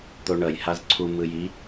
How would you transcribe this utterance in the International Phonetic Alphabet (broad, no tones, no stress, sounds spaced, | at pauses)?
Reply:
t̪ o ɳ ʌ j h a z ǀʰ u m ɯ j i